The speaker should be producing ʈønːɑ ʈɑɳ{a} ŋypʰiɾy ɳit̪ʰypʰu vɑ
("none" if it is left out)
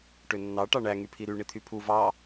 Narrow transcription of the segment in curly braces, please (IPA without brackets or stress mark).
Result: æ